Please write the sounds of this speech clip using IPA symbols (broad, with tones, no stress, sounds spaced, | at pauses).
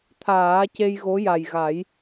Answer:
t̪ʰ aː˨˩˦ c e˧ j ɣ o˧˥ j a˨˩ j ɣ a˨˩˦ j